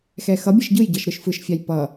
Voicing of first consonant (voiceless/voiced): voiceless